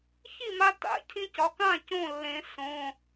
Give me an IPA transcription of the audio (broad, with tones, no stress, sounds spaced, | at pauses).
ç i˥˩ m a˧ t a̰˨˩˦ cʰ ĩ˧ c ɒ˩˧˩ k ã˥˩ c õ˥˩ lː ẽ˨˩˦ s õ˩˧˩